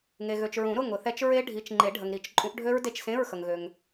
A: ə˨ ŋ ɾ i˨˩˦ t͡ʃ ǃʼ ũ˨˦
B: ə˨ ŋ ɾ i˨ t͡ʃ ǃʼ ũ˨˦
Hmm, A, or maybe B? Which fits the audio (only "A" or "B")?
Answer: A